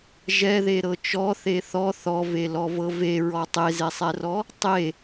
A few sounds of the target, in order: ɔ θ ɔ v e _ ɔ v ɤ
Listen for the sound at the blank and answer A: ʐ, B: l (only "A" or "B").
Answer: B